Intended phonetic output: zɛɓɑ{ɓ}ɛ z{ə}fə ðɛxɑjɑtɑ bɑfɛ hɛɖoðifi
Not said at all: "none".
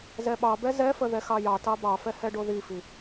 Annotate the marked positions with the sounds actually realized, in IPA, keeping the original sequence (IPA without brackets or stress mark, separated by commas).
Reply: b, ɛ